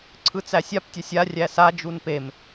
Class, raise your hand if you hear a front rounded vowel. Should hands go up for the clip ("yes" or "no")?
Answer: no